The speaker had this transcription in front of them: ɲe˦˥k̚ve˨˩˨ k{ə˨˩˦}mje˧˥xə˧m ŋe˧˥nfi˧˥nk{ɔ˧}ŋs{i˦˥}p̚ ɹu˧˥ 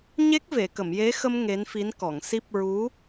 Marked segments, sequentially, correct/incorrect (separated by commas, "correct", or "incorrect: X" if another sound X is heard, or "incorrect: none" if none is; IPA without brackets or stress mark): incorrect: ə˨˩˨, incorrect: ɔ˨˩˨, correct